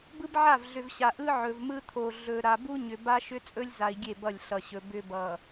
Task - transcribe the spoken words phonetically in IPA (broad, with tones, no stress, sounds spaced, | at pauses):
b ɯ˦ b ʕ a˦˨ v ɮ ʏ˨ v ɕ a˨ ʔ ɯ˦ ʕ ɵ˨ v m ɯ˦ t̪ʰ o˨ ɮ ɵ˨ ɾ a˨ b u˦ ɲ ʏ˨ b a˦ ʃ ʏ˦ t͡sʼ ɵ˦ lʲ z a˨ i̯ ɡʲ e˦˨ b ʌ˦˨ lʲ ɬ ʌ˨ ɕ ɵ˨ b ʏ˦ b ʌ˨